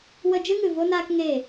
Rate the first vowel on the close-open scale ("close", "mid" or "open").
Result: mid